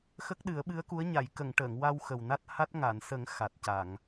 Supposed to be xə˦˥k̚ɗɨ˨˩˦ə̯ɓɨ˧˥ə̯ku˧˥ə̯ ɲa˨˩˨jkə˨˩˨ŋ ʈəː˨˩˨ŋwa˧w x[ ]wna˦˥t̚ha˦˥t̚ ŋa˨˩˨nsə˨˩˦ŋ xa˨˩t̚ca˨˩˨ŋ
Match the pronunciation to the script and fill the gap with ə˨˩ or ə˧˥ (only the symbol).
ə˨˩